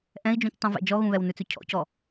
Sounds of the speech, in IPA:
ʔɛ̃i̯d͡ʒũctˤũvɛ̰ d͡ʒɔɣũβɛw nʉt͡sʉcʰɔ̰cɔ

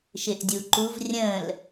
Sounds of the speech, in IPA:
ʃɪʔdʲuǃuv rʲə̃l

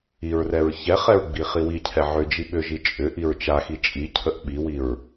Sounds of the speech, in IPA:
iɹrɛɹ çɛχɛɹ ɡ͡biχiwicʰɛ ʕʏd͡ʒi ɓʏʒi t͡ʃʼʏ ʔiɹt͡ʃaxi t͡ʃʼicʰəʔ ɓiwiɹ

